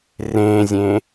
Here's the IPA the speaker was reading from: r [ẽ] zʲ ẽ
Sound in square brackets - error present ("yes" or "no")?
no